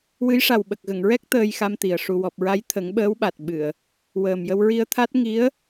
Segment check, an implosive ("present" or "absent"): present